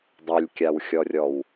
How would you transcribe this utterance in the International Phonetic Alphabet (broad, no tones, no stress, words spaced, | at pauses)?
dˤelʲkʲawxʲɔrʲɔw